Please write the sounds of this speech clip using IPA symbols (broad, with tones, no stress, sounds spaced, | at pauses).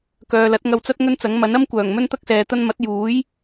k œː˨ l ɐ˨˥ t̚ ŋ ɐ˧ w t͡s ɐ˥ t̚ ŋ ɵ˥ n t͡s ɐ˨˥ ŋ m ɐ˨˥ n ɐ˥ m kʷ œː˨˩ ŋ m ɵ˥ n t̪ ɐ˥ k̚ s ɛː˨ t̪ ɐ˧ n m ɐ˨˥ t̚ j uː˨˥ j